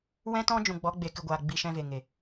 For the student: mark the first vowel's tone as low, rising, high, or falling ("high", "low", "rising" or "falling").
high